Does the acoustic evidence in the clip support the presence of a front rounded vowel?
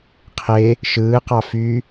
yes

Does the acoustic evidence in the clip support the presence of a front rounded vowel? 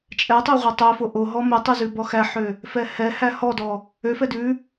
yes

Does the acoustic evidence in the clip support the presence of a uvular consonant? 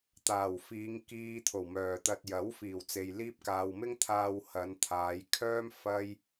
no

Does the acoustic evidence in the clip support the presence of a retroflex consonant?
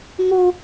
no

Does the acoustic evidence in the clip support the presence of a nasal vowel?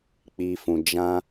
yes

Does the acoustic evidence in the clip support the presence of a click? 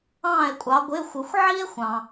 no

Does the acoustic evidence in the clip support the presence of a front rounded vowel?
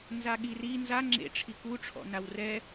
no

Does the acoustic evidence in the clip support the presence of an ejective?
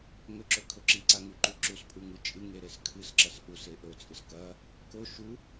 yes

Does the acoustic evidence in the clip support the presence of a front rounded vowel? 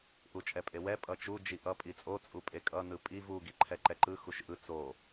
no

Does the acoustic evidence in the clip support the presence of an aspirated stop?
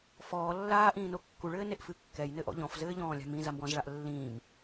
no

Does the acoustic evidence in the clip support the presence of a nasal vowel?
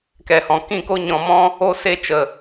yes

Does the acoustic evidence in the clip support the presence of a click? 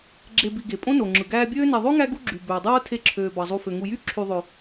yes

